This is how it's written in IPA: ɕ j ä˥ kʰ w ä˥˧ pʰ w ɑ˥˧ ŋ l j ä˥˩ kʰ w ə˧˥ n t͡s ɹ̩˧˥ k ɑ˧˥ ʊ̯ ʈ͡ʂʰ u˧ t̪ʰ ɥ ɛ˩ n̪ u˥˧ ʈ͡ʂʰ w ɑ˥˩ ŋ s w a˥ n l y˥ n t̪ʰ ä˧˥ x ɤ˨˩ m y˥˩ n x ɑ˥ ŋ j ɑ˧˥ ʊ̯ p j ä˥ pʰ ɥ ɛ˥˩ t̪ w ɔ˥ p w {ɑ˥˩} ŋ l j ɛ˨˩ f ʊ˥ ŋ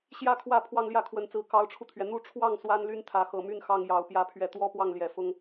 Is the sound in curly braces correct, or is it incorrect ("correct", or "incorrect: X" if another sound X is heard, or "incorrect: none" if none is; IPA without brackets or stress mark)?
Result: correct